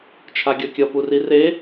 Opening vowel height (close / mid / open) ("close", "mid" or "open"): open